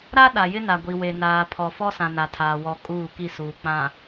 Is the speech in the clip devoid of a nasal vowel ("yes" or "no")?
no